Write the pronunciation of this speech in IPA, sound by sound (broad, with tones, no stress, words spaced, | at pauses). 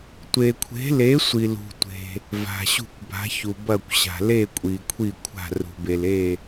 tʷe˨kʷʰe̤˨˥le˨˥ sʷi˨ lṳ˨tʷe̤˨ | va̤˨ɕṳ˥˨kʷba̤˨˥çu˨ bɐ˥˨kʷɕa̤˨ le˥˨ kʷʼi˨kʷʰi˥˨ kʷʰa̤˥˨rṳ˨be˨le˥˨